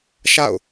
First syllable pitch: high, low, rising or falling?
falling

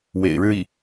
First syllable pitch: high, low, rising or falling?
low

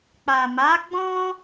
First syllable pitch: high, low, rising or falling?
low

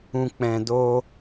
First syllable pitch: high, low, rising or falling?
low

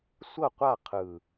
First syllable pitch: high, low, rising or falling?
falling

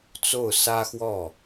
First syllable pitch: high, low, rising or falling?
falling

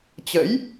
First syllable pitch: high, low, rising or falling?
rising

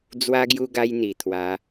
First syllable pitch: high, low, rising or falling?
high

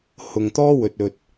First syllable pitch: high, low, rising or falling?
low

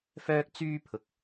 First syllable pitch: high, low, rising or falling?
high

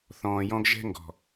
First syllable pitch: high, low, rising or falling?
low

